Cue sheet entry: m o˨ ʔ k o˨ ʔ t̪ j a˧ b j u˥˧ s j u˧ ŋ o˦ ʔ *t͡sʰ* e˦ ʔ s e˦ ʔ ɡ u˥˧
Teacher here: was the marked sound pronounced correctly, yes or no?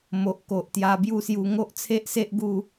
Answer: yes